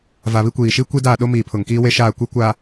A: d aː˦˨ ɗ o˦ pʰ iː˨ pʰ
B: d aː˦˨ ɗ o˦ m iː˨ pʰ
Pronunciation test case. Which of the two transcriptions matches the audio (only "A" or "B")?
B